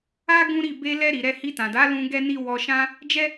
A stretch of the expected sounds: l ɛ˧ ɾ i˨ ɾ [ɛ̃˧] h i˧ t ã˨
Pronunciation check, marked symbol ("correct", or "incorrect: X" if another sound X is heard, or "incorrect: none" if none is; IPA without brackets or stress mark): incorrect: ɛ˧